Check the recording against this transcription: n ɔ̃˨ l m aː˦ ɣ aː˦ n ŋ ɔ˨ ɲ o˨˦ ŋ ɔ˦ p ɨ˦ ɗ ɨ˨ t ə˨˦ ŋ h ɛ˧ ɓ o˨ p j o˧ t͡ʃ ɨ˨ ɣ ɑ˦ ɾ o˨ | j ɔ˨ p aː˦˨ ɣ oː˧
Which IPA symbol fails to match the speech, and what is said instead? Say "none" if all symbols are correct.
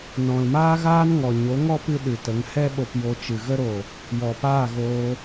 ɑ˦ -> ə˦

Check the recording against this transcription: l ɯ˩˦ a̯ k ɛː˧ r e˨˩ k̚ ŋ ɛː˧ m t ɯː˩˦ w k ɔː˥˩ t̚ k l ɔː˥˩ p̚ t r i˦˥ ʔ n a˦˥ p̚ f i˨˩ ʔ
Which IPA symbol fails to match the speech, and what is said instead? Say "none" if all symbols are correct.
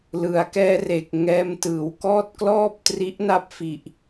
none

